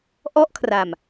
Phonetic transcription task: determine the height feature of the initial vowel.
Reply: mid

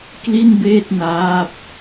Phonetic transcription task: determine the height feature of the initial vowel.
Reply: high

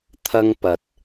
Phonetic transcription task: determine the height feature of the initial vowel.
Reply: low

